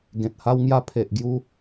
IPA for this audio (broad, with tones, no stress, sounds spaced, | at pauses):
ɡ ẽ˨ t̚ h a˧ w ŋ j a˧ pʰ e˨ ʔ ɡ j u˧